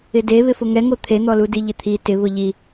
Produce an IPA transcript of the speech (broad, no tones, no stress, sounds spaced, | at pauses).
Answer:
ɪ d e β ɪ f ʊ ŋ ɛ ŋ o t̪ʰ e n̪ ɔ l u d i ʎ ɪ t̪ʰ i t ɪ β ʊ ʎ i